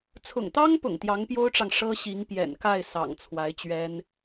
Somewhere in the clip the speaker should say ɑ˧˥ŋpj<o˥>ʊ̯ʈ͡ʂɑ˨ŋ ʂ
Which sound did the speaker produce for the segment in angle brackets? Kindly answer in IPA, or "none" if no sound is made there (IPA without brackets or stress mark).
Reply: o˥